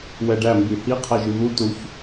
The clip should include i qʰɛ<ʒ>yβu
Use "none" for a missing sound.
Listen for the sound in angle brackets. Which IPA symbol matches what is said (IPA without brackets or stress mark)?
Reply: ʒ